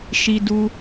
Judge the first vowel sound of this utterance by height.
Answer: high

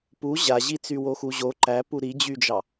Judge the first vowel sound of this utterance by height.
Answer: high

